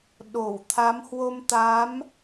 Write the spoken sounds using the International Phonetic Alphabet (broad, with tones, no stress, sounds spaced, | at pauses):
ɗ o˧˩ w t̪ʰ a˨˦ m h w o˧ m t̪ a˨˦ m